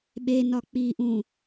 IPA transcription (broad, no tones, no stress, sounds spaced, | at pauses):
ɓ e n ɒ k͡p i ʔ ũ